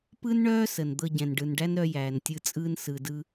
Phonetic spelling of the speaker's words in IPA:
pɯ˥nɳœː˥sə˩n d̪ɤ˧ɟɛ̃˩n ɖɯ˩nɖæ˥nɾœ˧ jæː˩ntʲɯ˧t͡sʼɯː˥n sɯ˩dɯ˧

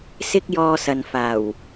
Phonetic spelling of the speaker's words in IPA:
sɪ˥k̚jɔː˧ sɐ˨nfaː˨˩w

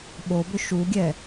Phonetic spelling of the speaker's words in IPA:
ɓobʏ ʃuɡʲɛ

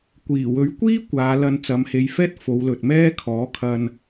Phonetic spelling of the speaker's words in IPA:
kʷiː˨˩wɵ˨˥ɥkʷiː˥ kʷaː˨˧lɐ˧n t͡sɐ˨˧mhe˨˧jfɛː˥t̚ fo˨˧wlɵ˨t̚ mɛː˥kʰɔː˨˥kʰɐ˧n

